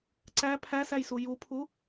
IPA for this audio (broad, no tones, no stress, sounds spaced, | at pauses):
ǀ æ pʰ æ s æ j s u j u pʰ u